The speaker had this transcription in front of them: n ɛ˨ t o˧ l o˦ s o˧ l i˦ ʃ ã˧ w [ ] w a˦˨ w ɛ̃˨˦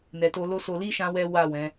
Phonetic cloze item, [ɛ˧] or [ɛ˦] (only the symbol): ɛ˦